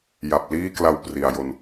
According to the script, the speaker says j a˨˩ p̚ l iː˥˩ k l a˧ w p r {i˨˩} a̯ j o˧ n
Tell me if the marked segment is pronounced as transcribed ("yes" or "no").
yes